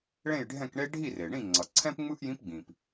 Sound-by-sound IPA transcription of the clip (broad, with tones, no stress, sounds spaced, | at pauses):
ɭ ẽ˥˨ j ɖʱ ɛ̃˥˨ k ɳ e˥ ɖʱ i˥˨ r e˩ ɳ ĩ˥˨ ŋ͡ǀ ʌ˩ ǀʰ ɛ̃˥ p ŋ͡m ɯ˥ ʔ j ĩ˧˥ p ɡ͡b ĩ˩ p